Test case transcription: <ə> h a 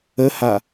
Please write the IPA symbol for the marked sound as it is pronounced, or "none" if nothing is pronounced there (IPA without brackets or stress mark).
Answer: ə